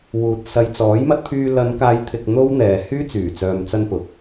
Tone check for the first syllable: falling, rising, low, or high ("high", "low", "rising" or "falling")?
low